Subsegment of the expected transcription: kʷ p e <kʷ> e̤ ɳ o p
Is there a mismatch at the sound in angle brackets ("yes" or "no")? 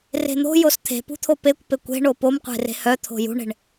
no